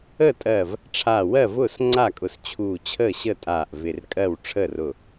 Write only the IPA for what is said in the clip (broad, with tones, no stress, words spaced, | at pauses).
əː˥˩tʼɜ˧˩v | ʈ͡ʂʰaː˧˩ wɜ˥˩ vʊː˥˩sŋ͡ǀa˥˩kʼʊ˧˩s t͡ɕʰuː˧˩t͡ɕʰəː˥˩ ɕə˥˩tʼaː˧˩ʔ vɪ˧˩rkʼɜ˥˩w ʈ͡ʂʰəː˥˩rʊ˧˩